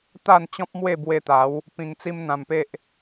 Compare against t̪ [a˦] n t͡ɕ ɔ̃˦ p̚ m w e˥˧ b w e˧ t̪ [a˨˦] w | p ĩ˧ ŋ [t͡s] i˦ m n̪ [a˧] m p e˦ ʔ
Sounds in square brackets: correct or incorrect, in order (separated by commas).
incorrect, correct, correct, incorrect